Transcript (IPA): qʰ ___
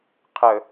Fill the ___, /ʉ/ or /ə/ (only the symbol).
ə